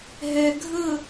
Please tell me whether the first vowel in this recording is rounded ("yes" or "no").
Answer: no